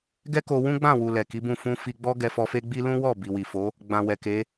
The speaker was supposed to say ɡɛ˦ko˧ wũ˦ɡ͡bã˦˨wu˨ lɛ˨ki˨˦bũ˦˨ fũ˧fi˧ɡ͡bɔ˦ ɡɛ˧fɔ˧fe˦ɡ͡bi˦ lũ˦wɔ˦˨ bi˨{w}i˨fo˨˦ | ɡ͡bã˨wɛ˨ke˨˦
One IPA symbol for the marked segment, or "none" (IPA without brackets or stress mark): w